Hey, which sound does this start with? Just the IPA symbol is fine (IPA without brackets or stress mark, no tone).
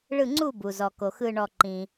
ɭ